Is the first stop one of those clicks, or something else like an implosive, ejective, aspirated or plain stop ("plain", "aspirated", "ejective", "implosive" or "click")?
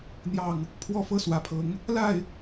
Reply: aspirated